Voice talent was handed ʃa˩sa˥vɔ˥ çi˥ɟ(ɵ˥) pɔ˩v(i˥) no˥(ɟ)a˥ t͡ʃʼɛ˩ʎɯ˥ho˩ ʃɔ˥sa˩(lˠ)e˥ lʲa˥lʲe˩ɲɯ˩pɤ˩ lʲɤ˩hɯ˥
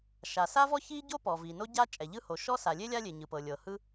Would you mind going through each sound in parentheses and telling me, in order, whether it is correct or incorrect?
incorrect: o˥, incorrect: i˩, correct, incorrect: lʲ

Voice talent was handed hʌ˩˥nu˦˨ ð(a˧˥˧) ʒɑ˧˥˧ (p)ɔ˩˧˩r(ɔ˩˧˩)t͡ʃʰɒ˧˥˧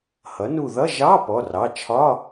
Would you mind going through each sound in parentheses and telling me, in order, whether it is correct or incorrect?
incorrect: ʌ˧˥˧, correct, incorrect: ɑ˩˧˩

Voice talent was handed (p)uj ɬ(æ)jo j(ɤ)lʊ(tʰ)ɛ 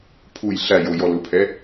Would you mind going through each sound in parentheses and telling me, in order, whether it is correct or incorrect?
incorrect: pʰ, correct, incorrect: ɔ, incorrect: pʰ

